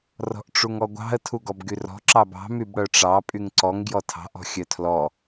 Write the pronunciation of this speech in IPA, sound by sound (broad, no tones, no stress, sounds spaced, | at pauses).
r ɔ̤ ʔ ʈ͡ʂ u ŋ ɔ ɡʷ ɑ̤ ə̯ tʰ u ɡ ɔ b ɡ y r ɔ̤ ǁ ɑ b ɑ̤ m y b ɽ œ ʈ͡ʂ ɑ pʼ y ŋ ǀ ɔ ŋ ɡ j ɔ tʰ ɑ̤ ʔ ɔ̤ xʲ œ tʰ l ɔ